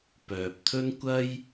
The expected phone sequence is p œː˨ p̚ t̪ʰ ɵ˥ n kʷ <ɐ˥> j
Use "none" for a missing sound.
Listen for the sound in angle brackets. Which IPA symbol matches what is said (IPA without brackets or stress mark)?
ɐ˥